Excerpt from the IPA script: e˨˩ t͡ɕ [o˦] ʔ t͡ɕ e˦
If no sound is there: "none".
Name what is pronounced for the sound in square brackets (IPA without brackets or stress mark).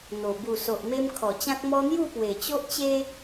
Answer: o˦